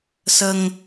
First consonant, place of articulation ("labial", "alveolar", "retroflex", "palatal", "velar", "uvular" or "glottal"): alveolar